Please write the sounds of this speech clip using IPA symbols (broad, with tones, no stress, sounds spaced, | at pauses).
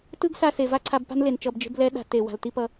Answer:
t ɯ˦ ɡ s a˧ s e˨ v a˦ ǀʰ a˧ b p a̤˦ n l e˨ n t͡ʃ ʌ˧ b d͡ʒ e̤˦ b l ɛ˦ ɗ a̤˧ t e˨ w a̤˨ l t i˦ p ʌ˧